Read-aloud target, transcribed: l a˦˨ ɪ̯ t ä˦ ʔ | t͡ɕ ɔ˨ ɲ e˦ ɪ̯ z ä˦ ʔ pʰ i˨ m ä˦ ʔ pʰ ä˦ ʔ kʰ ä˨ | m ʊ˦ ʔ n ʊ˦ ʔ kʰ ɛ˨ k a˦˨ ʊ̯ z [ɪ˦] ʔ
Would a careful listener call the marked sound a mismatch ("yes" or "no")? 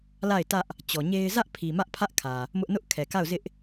no